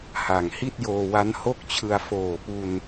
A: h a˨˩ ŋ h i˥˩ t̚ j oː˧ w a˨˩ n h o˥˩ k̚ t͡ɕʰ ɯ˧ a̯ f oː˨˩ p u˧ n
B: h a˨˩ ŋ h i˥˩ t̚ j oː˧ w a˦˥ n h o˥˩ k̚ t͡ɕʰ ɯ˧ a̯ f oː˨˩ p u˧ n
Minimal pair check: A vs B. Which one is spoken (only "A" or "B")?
B